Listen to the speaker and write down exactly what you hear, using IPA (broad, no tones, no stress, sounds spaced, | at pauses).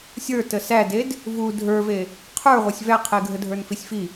sʲ ə˞ t ə s æ d e d | v u dʱ ə˞ v e | qʰ ə˞ ʁʷ ə˞ sʲ v æ qʰ e ɡʱ ə dʱ ə˞ n f i sʲ f i